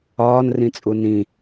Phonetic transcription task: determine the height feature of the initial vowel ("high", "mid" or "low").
low